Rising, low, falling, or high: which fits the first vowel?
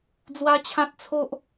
high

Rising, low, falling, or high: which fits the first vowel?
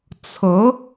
rising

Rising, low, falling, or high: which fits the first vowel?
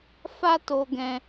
high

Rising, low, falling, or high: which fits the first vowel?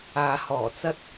low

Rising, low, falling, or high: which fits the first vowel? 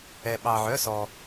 low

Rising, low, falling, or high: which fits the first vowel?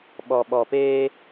low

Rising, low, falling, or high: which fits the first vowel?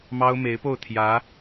high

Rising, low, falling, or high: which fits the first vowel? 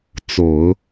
low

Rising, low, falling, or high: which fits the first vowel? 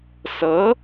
rising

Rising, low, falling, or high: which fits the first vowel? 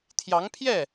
rising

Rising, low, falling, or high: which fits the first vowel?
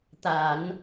low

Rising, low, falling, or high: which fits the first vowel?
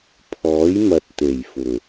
rising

